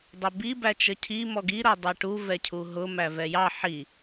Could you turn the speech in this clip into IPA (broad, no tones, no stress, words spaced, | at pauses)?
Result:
dˤʊbi bæt͡ʃəcʰi mɔɡi ɾʌdˤɛʈu vɛcʰuɦʊ mævɛjɑ ħi